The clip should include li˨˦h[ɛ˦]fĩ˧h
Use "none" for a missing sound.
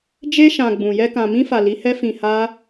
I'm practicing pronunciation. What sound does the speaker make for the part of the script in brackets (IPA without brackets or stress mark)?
ɛ˦